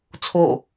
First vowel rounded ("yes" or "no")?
yes